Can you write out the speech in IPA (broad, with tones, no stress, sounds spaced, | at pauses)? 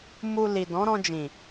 m u˧ l i˨ d ɔ̃˨˦ ɾ ɔ̃˧ d͡ʒ ĩ˨